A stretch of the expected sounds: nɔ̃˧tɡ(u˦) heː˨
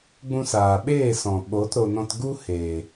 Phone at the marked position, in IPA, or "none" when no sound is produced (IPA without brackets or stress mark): u˦